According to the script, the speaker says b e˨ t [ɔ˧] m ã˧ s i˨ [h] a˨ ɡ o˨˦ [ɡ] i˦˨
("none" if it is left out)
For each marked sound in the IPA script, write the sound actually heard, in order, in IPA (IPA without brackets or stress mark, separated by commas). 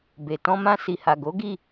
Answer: ɔ̃˧, h, ɡ